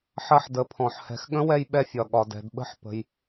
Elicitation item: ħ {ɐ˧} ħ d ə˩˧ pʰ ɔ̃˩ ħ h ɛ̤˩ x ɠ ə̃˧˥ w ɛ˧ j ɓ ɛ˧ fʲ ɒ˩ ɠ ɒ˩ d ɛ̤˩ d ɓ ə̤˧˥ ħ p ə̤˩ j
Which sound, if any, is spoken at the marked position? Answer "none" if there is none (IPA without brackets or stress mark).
ɐ˧